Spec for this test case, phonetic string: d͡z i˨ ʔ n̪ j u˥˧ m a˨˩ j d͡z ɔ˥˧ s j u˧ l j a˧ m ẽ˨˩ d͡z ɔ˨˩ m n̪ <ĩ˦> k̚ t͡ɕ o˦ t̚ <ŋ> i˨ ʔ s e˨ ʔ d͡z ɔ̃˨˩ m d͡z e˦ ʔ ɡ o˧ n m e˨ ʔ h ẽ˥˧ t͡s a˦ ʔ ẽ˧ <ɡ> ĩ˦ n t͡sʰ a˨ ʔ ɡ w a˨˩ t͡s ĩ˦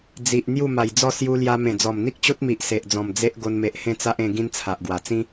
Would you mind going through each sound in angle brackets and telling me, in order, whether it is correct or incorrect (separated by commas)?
incorrect, incorrect, correct